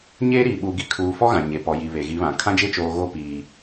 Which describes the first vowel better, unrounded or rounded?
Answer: unrounded